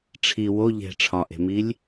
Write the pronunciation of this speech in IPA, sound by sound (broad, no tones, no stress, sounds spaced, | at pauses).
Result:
ʈ͡ʂʰ i w o ʎ e̤ ʈ͡ʂʰ ɒ ʔ e̤ m i lʲ